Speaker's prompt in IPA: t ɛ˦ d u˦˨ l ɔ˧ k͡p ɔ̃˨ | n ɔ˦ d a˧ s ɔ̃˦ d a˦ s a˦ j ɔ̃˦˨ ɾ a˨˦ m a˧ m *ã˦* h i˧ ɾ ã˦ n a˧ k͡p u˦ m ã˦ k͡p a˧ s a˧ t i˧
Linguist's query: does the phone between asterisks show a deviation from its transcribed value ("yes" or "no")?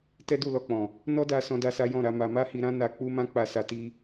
yes